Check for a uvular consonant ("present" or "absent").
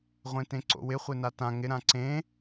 present